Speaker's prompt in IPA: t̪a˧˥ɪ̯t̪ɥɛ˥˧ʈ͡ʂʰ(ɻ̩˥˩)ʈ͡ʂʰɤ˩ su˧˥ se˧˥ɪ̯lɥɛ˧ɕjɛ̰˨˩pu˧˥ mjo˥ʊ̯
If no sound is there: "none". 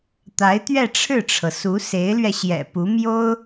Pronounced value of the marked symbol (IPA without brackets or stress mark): ɻ̩˥˩